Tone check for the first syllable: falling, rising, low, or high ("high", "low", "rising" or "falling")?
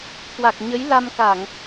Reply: low